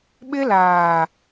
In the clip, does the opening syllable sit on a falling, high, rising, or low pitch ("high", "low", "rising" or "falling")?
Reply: high